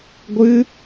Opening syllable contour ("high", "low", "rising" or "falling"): high